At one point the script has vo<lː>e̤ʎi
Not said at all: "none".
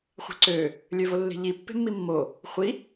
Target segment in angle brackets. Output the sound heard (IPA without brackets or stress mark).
lː